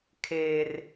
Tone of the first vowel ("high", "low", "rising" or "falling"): high